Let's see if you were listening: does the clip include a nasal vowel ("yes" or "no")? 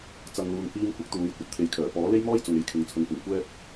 no